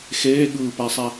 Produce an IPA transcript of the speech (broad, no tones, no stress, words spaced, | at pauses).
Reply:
xeːɠɯːpæsˤæ